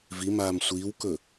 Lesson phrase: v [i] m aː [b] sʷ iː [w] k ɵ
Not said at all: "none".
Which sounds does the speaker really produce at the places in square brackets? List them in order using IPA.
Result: i, m, w

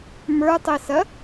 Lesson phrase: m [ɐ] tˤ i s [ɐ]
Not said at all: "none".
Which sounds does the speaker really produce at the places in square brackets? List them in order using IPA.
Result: ə˞, ɐ

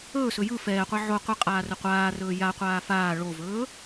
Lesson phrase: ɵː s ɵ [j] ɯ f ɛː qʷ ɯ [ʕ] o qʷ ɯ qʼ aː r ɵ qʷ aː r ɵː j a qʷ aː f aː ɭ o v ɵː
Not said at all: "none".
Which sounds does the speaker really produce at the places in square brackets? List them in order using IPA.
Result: j, ʕ

